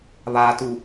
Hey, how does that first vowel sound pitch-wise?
low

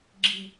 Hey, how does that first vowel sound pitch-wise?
low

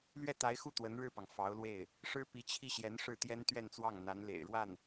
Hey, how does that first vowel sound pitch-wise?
falling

